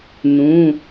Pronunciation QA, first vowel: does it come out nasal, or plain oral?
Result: nasal